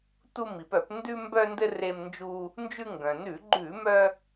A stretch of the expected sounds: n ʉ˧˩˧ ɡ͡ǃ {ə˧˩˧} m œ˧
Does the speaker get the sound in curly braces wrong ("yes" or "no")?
yes